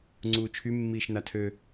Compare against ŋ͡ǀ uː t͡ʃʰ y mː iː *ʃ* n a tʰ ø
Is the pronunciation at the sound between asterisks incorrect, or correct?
correct